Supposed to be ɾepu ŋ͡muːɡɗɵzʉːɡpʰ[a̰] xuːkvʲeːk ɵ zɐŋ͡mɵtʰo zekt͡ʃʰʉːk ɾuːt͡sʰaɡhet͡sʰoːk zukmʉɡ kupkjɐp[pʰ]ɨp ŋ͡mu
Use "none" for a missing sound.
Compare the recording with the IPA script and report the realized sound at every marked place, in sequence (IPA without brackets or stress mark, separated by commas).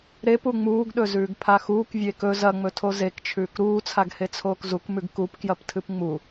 a, tʰ